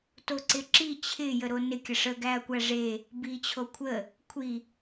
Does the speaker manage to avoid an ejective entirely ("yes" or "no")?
yes